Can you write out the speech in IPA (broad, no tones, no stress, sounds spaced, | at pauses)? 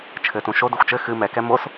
t͡ʃʰ ɘ t ũ ʃ o d ɨ xʷ t͡ʃ ɘ x ɨ m ɛ k ɛ m o s